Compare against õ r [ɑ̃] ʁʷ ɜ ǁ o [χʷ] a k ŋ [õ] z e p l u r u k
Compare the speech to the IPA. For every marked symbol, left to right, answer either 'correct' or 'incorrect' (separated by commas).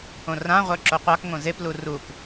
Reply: incorrect, incorrect, correct